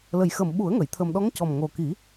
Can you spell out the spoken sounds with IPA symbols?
l ə˨˩ j x ə˨˩ m ɓ u˨˩˦ ə̯ ŋ ə˨˩˨ j t̪ʰ ə˨˩ m ɗ ɔ˧˥ ŋ c ɔ˨˩ m ŋ o˨˩ k i˨˩˦

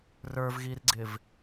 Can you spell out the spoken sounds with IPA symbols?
r ə˞ v ɣ i r ɡ͡ǀ ɪ v

